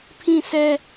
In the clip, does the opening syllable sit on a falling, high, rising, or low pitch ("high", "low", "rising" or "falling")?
falling